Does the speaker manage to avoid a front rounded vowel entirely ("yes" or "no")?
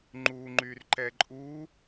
no